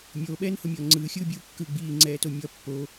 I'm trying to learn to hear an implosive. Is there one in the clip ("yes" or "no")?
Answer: yes